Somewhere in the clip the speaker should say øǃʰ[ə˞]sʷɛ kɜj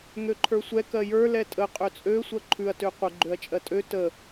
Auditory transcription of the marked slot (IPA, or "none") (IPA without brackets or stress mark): ə˞